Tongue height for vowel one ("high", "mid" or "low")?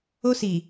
mid